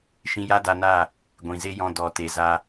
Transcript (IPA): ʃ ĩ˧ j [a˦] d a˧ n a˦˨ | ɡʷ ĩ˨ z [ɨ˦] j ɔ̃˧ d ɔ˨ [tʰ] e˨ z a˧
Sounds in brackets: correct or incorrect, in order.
correct, incorrect: e˦, incorrect: t

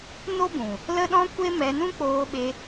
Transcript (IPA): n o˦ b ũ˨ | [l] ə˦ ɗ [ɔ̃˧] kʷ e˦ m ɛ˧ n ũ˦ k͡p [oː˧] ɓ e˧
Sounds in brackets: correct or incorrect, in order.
correct, incorrect: ɔ̃˦, correct

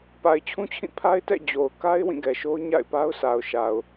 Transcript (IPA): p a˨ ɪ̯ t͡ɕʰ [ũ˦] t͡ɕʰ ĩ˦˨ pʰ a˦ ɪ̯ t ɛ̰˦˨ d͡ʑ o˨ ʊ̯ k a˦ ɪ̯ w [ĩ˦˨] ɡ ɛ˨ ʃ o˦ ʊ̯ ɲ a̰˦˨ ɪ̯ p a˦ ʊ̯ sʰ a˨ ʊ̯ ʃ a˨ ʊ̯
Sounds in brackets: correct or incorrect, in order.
correct, correct

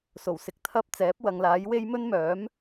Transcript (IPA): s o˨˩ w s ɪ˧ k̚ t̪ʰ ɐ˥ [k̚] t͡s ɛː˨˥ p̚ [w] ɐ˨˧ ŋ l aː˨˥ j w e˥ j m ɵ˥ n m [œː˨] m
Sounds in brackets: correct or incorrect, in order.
incorrect: p̚, correct, incorrect: œː˨˥

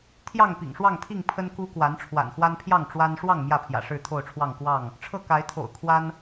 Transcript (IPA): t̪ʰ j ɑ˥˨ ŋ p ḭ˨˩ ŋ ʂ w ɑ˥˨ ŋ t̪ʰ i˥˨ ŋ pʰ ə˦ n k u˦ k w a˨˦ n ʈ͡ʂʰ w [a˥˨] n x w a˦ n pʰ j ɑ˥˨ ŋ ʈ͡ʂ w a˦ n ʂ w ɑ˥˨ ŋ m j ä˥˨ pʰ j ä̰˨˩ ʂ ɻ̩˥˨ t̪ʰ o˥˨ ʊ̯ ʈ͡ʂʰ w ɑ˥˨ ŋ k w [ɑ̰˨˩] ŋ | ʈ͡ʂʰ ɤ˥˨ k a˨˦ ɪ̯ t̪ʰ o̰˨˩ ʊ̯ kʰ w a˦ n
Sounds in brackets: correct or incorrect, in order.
incorrect: a̰˨˩, incorrect: ɑ˥˨

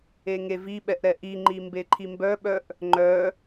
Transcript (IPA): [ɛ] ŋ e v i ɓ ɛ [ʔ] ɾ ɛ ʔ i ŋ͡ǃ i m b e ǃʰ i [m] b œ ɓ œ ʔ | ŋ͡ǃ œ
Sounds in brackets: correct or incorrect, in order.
incorrect: e, correct, correct

